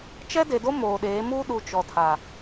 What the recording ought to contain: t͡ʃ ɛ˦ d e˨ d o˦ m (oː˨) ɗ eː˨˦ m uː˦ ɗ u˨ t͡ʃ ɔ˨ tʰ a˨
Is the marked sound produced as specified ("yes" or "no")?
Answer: yes